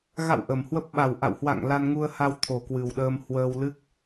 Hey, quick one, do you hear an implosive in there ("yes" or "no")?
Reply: yes